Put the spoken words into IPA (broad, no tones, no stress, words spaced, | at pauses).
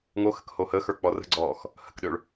ŋoxə̤k hohəːxə˞ k͡pɔrə̤ɡ͡ǀɔːx | hə̤kɗøɭ